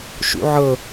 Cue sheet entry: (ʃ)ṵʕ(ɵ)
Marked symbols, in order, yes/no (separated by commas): yes, no